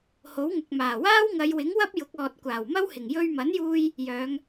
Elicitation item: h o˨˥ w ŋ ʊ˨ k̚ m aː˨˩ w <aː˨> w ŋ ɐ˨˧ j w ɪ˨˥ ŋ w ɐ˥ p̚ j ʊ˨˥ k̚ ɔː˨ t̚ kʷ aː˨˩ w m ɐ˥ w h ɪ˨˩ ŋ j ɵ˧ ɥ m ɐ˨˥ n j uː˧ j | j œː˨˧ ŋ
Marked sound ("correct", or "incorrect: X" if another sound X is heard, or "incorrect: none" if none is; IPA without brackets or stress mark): incorrect: aː˥